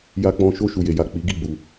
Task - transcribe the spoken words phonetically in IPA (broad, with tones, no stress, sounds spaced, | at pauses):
j a˦ k͡p ɔ̃˦ ʃ o˧ ʃ u˨ j e˨ j a˨ k͡p i˨˦ ɡ i˦˨ ɡ͡b u˧